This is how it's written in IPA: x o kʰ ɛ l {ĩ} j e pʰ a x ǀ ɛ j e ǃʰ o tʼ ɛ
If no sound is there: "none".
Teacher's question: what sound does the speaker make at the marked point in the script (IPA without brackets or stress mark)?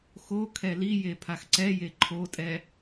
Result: i